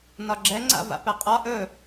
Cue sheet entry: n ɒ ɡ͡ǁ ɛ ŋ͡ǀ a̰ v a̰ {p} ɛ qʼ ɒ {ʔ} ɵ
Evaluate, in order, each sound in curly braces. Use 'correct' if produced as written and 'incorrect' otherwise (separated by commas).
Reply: correct, correct